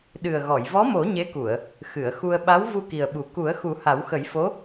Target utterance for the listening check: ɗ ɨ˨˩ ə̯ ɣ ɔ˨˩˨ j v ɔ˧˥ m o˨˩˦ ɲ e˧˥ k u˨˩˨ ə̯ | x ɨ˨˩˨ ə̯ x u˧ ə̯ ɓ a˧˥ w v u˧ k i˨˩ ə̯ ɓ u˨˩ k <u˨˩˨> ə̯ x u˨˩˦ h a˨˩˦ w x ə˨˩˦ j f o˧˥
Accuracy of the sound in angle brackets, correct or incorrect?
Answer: incorrect